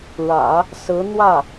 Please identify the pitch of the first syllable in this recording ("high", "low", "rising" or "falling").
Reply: low